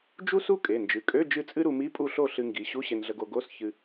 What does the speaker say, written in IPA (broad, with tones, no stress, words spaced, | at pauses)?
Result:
d͡ʒu˥su˥ kʼe˩˧˩nd͡ʒɨ˩˧˩kʼø˧˥˧ d͡ʒɨ˥˩t͡sʼɨ˥ ɾu˧mi˧˥˧pʼu˥˩ɬo˥˩ ɬɨ˧ŋɡi˩˧˩ ɕu˧˥˧ɕe˧nɮə˧ɡo˧ ɡo˧˥˧sçɨ˧